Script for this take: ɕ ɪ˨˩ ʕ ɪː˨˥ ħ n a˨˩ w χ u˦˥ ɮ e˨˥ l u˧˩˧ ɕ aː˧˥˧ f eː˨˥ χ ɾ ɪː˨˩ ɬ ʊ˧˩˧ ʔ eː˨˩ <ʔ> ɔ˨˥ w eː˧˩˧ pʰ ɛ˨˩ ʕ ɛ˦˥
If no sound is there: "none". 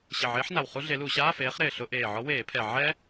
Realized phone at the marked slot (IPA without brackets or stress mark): ʕ